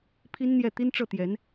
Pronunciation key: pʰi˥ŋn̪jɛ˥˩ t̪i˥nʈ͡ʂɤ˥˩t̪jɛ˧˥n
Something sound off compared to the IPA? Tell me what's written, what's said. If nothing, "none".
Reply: ŋ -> n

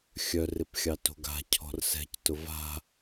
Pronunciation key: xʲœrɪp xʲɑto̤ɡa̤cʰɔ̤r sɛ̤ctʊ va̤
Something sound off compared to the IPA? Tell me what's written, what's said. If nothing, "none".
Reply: none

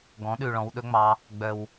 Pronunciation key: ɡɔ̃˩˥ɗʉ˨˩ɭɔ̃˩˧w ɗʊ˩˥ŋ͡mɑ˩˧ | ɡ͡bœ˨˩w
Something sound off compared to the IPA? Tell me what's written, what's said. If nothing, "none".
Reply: ʊ˩˥ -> ɵ˩˥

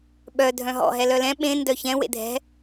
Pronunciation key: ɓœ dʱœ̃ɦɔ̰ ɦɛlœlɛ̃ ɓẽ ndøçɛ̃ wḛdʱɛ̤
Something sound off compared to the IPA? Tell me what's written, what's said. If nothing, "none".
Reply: ø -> œ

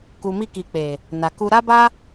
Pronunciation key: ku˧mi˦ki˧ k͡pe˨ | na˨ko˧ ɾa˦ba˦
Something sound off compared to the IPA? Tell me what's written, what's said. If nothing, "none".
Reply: o˧ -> u˧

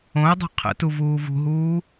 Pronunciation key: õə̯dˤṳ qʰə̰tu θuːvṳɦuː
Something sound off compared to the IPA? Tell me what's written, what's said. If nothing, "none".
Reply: θ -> v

